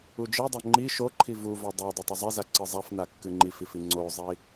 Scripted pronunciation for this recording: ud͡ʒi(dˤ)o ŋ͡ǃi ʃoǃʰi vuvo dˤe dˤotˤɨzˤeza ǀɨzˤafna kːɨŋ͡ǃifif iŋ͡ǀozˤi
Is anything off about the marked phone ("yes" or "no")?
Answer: no